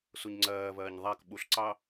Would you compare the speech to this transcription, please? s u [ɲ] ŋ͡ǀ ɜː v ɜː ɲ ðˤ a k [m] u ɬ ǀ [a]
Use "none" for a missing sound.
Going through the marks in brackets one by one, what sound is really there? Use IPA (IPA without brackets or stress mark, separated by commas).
ɲ, ɓ, ɑ